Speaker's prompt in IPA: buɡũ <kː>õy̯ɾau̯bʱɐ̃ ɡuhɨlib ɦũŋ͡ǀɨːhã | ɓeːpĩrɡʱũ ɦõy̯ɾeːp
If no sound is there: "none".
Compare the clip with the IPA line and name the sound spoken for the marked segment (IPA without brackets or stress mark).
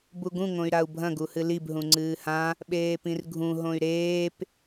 ŋ